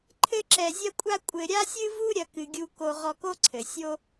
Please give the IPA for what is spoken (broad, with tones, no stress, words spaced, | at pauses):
ǃʰɘ˥ǁɛ˧zʲɐ˥kʷʼa˥ kʷʼɘ˧ɾʲa˥sʲɨ˥vu˥ ɾʲɐ˥kɨ˧ɡʲu˥ ko˥ ʁɔ˧ko˥ǀʰɘ˩ sʲo˥